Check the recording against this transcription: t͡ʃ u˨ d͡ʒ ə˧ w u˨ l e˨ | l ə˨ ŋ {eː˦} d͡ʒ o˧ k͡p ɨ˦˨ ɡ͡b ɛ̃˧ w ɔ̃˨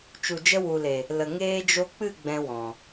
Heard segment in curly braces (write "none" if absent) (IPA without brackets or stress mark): eː˧